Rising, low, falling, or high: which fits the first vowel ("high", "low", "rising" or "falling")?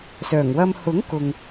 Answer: low